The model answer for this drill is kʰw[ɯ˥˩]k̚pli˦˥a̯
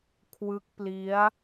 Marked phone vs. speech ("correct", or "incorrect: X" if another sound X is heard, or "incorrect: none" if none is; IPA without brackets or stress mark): incorrect: ɯ˦˥